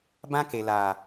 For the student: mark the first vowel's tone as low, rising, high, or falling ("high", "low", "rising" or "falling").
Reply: high